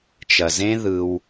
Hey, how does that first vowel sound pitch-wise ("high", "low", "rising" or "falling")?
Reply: low